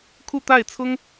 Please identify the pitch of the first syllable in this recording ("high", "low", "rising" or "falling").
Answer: falling